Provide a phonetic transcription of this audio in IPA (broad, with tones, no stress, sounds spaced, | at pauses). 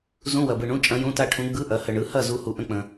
z ũ˧˥˧ w ɐ˨ b ɯ˨ ɳ ũ˧˥˧ t͡ʃʼ ɐ̃˧˥ j ũ˧˥˧ t a˥˨ ʈʰ ũ˧˥ ɡ͡b ɯ˧˥˧ ʔ ɐ˩˥ h ə˨ ɳ ɯ˩˥ h ɐ˥˨ z u˧˥ h u˨ ʔ ə̃˧˥˧ k͡p ə̃˨